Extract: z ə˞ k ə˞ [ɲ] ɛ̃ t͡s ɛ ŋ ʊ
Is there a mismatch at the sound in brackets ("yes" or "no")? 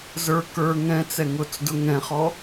yes